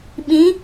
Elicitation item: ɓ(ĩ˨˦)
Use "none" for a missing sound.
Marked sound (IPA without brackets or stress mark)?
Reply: ĩ˨˦